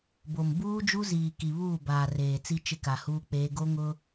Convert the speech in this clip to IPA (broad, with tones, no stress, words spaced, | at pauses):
bo˨m buː˦d͡ʒu˦ziː˨ ki˨βuː˦˨ baː˨reː˨t͡si˦ t͡ʃɪ˦ka˨huː˦k͡peː˦ ɡo˦ŋʊ˦